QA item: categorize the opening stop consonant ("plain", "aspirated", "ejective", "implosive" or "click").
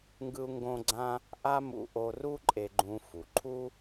plain